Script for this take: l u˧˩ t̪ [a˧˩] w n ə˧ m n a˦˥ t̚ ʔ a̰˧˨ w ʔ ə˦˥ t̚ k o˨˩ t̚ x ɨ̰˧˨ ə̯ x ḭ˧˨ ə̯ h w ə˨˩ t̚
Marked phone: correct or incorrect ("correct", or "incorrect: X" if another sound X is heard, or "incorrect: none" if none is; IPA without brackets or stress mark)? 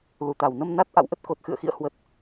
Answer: correct